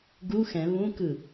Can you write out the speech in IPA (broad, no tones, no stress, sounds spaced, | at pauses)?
ɡ u x ɛ̃ β ũ k ɯ